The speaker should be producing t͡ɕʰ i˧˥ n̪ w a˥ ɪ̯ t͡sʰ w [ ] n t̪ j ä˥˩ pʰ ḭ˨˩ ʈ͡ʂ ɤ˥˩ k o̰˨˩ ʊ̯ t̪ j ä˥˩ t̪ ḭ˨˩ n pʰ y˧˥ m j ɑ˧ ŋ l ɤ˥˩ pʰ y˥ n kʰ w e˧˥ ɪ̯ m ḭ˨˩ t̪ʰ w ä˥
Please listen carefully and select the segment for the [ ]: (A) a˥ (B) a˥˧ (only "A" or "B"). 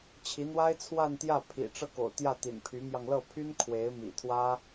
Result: B